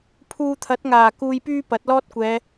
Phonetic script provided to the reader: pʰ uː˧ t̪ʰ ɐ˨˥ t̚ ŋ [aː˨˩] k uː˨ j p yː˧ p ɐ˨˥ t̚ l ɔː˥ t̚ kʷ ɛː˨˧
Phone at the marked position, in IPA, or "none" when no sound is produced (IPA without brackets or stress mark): aː˨˩